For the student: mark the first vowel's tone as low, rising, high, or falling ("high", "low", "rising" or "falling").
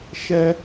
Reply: high